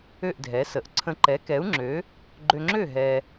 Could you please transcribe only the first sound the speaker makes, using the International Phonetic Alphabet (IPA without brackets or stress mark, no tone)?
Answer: ø